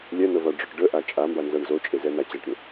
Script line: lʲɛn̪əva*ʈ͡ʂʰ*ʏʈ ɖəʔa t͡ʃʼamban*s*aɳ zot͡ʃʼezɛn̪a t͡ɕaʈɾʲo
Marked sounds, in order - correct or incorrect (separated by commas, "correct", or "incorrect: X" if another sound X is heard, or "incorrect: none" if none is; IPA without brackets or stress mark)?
incorrect: ɖ͡ʐ, incorrect: z